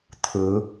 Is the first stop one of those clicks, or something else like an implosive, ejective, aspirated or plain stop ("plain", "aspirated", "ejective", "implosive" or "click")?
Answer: aspirated